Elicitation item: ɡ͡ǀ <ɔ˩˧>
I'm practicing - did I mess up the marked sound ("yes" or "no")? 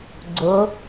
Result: yes